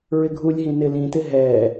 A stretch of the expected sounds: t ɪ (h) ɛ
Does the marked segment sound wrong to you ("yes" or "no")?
yes